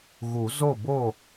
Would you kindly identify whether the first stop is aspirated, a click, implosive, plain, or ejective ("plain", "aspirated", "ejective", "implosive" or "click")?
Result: plain